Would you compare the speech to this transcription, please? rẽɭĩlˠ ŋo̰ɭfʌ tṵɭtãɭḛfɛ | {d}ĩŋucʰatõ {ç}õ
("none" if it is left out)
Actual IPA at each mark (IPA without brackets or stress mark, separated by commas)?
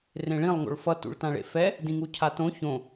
d, ç